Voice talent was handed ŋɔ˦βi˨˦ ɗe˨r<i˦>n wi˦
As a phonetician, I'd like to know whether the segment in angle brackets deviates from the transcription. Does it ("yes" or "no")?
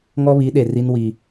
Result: no